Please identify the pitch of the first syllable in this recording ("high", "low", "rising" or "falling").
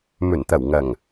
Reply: low